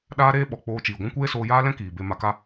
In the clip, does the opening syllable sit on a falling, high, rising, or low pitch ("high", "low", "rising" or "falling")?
high